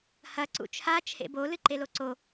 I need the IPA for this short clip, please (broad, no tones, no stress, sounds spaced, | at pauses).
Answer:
h ɐ ǀ ṵ t͡ʃʰ a t͡ʃʰ ḛ b o l ɨ ǃ e l o ǀ o